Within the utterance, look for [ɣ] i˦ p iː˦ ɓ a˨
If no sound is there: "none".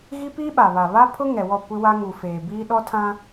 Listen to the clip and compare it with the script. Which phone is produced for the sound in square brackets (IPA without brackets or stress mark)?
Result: ɣ